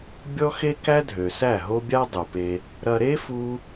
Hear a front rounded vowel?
yes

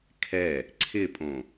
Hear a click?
yes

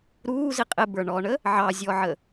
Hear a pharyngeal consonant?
yes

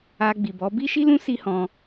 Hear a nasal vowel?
yes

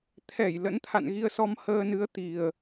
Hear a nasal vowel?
no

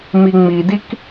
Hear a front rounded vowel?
no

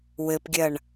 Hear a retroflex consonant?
yes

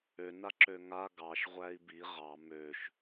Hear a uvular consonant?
yes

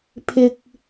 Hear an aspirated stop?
yes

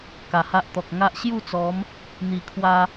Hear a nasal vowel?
no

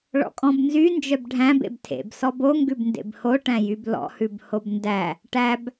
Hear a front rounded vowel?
yes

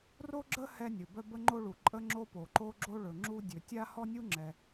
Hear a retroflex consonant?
yes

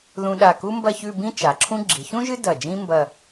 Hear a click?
yes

